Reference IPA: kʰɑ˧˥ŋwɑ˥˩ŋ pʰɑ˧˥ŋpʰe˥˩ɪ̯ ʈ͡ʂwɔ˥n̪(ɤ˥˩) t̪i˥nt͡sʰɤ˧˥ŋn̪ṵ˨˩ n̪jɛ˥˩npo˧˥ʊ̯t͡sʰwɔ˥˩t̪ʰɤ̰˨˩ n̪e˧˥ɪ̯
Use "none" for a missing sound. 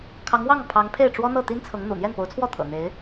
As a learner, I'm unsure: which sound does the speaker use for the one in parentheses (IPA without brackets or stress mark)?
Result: ɤ˥˩